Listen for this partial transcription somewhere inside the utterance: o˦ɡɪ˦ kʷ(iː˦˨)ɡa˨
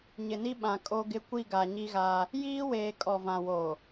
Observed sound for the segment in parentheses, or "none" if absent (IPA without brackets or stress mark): i˦˨